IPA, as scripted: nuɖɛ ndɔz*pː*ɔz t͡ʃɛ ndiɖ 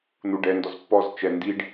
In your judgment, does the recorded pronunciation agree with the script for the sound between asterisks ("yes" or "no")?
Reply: yes